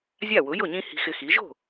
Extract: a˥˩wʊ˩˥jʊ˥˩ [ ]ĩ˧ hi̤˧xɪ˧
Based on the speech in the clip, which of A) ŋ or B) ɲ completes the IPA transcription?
B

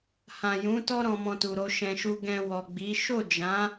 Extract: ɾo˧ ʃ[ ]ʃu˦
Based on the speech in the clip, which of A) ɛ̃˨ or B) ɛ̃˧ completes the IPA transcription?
B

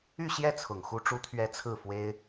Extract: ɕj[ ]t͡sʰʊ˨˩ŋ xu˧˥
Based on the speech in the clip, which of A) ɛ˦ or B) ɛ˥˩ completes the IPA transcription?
B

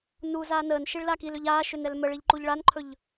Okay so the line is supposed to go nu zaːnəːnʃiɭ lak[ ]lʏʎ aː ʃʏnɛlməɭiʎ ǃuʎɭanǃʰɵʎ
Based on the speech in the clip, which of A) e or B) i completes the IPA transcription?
B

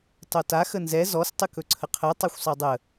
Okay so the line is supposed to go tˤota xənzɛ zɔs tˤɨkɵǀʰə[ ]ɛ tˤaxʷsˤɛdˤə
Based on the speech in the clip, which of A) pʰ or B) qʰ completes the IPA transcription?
B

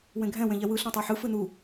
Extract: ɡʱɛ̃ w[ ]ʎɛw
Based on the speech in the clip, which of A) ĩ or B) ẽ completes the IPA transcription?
B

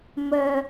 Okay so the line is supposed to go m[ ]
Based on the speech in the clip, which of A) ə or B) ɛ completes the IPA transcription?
A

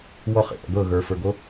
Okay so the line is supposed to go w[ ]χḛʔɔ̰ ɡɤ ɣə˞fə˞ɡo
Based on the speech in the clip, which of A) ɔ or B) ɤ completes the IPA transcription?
A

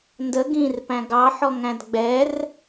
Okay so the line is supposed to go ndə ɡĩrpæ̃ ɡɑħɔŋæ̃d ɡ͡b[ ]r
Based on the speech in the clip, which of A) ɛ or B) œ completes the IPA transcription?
A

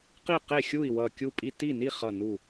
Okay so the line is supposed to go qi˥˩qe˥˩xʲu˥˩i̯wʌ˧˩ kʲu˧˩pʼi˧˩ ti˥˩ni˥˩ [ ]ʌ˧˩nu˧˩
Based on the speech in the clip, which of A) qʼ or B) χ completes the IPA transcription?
B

